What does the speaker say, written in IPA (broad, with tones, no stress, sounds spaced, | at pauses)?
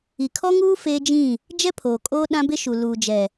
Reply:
i˨ kʰ ɔ˦ ŋ uː˦ f eː˦ d͡ʒ ĩ˦˨ | d͡ʒ ɛ˦ pʰ oː˨ kʼ oː˦ ɗ ã˦ b ɪ˦ ʃ u˨ l uː˨ d͡ʒ ɛ˨